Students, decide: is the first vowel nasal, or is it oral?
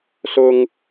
oral